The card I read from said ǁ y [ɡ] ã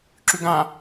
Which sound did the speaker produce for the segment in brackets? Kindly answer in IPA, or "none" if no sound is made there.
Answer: ɡ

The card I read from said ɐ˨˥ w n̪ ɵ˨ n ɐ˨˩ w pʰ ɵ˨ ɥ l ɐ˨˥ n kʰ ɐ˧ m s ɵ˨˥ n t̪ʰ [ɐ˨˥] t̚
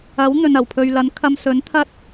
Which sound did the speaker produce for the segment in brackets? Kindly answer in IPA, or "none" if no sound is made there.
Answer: ɐ˥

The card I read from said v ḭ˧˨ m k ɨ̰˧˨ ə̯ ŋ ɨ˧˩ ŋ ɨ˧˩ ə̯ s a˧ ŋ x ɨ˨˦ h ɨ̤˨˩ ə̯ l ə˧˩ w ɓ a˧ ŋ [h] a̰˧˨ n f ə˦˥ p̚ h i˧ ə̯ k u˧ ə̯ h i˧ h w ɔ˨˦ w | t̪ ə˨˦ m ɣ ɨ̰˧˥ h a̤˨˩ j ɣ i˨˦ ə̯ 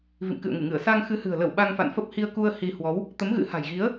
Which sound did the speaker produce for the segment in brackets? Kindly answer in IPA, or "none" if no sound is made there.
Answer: f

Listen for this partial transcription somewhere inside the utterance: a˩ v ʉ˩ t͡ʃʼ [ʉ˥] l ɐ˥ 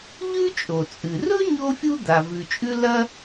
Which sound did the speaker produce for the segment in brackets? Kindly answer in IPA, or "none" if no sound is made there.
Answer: ʉ˥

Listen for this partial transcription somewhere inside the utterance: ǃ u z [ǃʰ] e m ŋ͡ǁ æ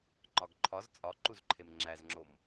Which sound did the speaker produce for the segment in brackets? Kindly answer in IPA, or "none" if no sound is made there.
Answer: ǃʰ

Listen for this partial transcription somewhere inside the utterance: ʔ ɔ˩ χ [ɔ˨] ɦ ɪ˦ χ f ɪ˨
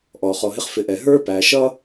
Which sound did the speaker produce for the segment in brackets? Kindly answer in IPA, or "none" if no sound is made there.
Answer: ɔ˨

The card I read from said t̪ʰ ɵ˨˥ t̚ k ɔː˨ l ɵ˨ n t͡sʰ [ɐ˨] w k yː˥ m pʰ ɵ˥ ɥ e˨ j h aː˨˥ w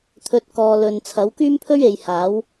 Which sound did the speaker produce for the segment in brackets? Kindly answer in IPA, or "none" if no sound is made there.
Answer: ɐ˨˥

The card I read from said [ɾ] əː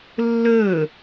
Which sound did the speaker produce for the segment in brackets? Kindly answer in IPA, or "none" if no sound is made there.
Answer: lː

